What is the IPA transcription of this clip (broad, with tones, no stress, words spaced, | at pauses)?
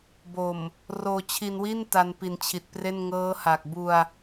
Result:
bo˨˩m | roː˧t͡ɕʰi˧nwi˥˩n ta˧npi˨˩nt͡ɕʰi˨˩t̚pre˥˩n ŋɤː˦˥ha˨˩k̚ bu˧a̯